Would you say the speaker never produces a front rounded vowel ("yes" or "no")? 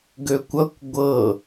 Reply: no